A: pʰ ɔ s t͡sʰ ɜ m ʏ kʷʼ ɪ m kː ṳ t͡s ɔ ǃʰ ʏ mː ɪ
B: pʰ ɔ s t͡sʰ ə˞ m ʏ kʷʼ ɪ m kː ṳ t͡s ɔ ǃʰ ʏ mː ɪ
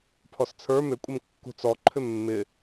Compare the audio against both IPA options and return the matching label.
B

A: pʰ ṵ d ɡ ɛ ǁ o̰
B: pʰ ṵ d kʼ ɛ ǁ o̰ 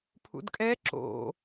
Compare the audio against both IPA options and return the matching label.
B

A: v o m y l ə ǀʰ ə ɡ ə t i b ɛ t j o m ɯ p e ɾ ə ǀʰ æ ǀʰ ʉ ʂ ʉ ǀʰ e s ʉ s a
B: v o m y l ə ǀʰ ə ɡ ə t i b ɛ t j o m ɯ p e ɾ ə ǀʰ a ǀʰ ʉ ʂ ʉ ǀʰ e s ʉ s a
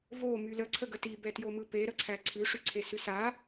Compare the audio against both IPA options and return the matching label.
A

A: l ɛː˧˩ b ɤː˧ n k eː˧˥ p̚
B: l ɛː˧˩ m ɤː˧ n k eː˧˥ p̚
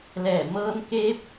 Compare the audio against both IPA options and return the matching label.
B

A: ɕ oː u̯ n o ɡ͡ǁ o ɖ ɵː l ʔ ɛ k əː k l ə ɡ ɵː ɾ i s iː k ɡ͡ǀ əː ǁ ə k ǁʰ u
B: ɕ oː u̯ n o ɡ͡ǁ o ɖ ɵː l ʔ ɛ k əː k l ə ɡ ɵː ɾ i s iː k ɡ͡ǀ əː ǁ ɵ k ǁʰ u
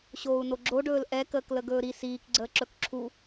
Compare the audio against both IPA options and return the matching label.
B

